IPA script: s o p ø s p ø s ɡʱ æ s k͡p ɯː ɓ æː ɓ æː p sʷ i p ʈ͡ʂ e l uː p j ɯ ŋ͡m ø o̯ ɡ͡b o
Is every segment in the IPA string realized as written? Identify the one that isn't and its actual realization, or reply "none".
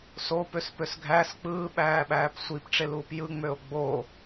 none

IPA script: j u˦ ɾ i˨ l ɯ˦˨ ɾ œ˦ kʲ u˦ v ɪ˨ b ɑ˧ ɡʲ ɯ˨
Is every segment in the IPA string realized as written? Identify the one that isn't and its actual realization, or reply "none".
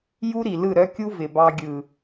none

